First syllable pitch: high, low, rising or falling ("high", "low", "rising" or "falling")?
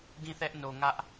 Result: falling